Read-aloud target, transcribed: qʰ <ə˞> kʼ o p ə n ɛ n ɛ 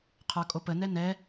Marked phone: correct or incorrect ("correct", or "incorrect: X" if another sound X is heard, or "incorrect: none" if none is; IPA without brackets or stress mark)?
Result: correct